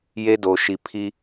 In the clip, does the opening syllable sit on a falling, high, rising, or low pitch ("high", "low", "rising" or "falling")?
high